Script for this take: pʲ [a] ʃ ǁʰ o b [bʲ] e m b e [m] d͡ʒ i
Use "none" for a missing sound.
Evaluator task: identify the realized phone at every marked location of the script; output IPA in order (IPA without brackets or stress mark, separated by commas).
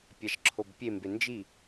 a, pʲ, n